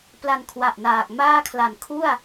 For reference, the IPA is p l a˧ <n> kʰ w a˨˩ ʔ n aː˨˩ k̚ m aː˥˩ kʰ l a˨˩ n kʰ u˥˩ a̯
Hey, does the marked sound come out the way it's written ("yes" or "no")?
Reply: yes